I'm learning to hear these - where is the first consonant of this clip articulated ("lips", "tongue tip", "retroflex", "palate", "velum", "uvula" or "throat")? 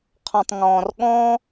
uvula